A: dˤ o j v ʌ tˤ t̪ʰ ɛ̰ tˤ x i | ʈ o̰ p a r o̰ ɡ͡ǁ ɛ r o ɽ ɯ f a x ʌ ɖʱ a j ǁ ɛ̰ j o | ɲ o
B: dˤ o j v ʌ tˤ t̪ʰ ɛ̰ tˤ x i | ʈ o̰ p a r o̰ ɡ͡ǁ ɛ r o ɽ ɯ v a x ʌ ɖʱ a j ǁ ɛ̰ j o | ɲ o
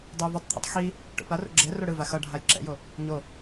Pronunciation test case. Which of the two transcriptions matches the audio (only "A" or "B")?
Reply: B